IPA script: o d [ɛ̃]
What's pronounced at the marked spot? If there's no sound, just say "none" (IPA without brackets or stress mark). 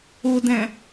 æ̃